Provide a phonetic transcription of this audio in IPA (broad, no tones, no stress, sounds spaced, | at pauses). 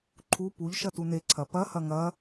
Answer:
ǃʰ u p u ʎ ʃ ɐ t u n e ǀʰ ɐ p ɐ h ɐ ŋ ɐ